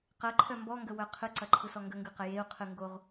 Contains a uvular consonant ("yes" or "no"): yes